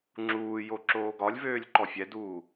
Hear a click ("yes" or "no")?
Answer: yes